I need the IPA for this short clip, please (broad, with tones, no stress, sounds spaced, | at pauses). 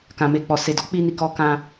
k ã˨ m e˧ k͡p ɔ˨ s e˨ d ɔ˨˦ k͡p i˧ n i˨ k ɔ˧ k ã˧